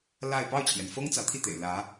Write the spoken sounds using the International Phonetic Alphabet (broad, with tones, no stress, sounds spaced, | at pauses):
l a˥˧ ɪ̯ p ɑ˥˩ ʊ̯ t͡ɕʰ j ɛ˩ n f ɤ˥ ŋ t͡s ä˧˥ t̪ʰ i˥˩ t̪ ḛ˨˩ ɪ̯ l ä˧˥